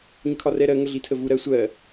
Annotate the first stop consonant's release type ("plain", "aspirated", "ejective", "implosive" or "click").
aspirated